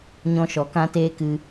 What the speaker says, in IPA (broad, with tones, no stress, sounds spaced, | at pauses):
ɲ ɔ̃˧ ʃ ɔ˨ k ã˦ t eː˦ k ɨ˧